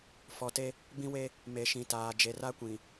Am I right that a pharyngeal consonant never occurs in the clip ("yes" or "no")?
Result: yes